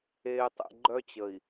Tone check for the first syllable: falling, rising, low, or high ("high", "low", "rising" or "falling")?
low